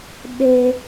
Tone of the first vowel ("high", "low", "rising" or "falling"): high